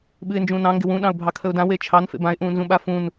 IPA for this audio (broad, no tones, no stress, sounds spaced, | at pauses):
ɓ ɨ ɪ̯ n d͡ʒ ũː n ɑ̃ ŋ ɡ ɪ w ũ ɗ ɑ̃ ʊ̯ bʱ ɑ kʰ ə ʊ̯ d ã w e t͡ʃʰ ɑ n f ḛ b ã ɪ̯ ʔ ũː n z ũ ɓ a f ũ n